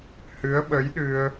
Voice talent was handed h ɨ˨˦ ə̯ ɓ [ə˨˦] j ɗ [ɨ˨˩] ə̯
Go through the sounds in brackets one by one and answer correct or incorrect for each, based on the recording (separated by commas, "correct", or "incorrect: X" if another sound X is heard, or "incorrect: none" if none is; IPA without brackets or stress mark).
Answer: correct, incorrect: ɨ˧